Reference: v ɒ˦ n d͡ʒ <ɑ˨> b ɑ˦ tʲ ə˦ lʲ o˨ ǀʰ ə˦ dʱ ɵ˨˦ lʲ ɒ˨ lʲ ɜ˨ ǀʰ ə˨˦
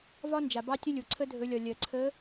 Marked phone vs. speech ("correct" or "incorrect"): incorrect